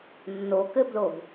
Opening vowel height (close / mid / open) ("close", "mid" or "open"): mid